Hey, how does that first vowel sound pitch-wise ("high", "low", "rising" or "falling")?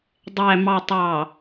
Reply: low